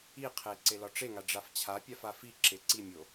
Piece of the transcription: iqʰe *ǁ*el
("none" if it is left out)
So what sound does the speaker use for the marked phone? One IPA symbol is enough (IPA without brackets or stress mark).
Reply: ǀ